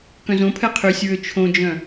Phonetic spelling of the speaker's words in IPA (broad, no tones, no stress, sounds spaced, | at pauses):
k œ̃ z õ pʰ ɛ qʰ y sʲ ɹ ø t͡ʃʰ õ d͡ʒ œ̃